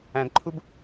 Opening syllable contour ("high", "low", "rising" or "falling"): low